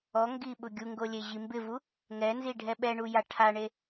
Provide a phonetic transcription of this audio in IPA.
ɔ ŋ ɡ i ɓ ʊ ɡʲ u ŋ ɡ o lʲ e ʑ i m b ɪ v u | ŋ ɛ n z i ɖʱ ɛ ɓ ɛ ɳ u j a ʈʰ a ɳ e

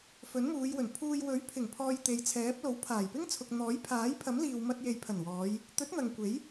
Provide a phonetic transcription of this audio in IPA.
f ɵ˨˥ n m uː˨˧ j w ɵ˨˩ n pʰ uː˧ j w ɵ˨˥ ɥ pʰ ɪ˨˩ ŋ pʰ ɔː˧ j t̪ e˨˧ j t͡sʰ ɛː˨˥ p̚ l o˨˥ w pʰ aː˨˩ j p ɪ˥ ŋ t͡sʰ ʊ˨ k̚ n̪ ɔː˨˥ j pʰ aː˨˥ j pʰ ɐ˨˥ m l iː˨ w m ɐ˧ t̚ j e˨ j pʰ ɐ˨˩ n w ɔː˨˧ j | t̪ ɵ˨˥ t̚ n̪ ɐ˨ ŋ kʷ e˨˥ j

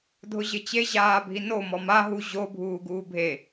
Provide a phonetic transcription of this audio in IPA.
dʱ ʊ ʑ ɪ t͡ɕ e ʑ aː bʱ i n o m ɔ m a ɦ u ʑ o bʱ uː ɡ uː bʱ e

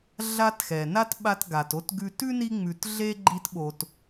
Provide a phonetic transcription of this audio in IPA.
ɮ a˦ t x ɛ˩ n a˥ t ɓ a˦ t ɡ a˩ t o˥ t ɡ ʉ˦ t ʉ˥ n i˦ ŋ͡m ʉ˨ t ɮ e˥ ɡ͡ǃ i˦ t ɓ o˨ t

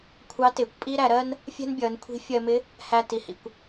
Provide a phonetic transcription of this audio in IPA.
kʷʰ ɑ˧˥ t ɪː˩ kʷ pʼ i˥ ɾ æ˩˧ ɾ ɜ˥ n | fʲ ɛ̤˥ n bʲ ʌː˩˧ n kʷʰ i̤˧˥ fʲ ɜ˧ m ɪ˧˥ | h æ˧ t i˩ h ḭ˩ kʷ

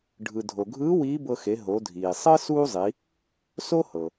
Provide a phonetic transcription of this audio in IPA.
ɖʱ ɯ˩ dʱ o˩ ɡʱ ɯː˧˥ w iː˧˥ b ɤ˧ x e˩˧ ɦ o˩˧ dʱ iː˩ sˤ ɤ˥ s uː˥ zˤ i˩˧ | s o˥ h ɤ˩

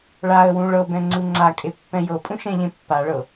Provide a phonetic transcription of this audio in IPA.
ɭ a ə̯ w ũ ɭ ɤ b ɛ̃ ŋ͡ǀ ɯ ŋ͡ǀ a kʼ e pː ɛ̃ j ɤ pʼ ũ ʃ ɛ̃ ʎ ẽ pː a ɭ ɤ

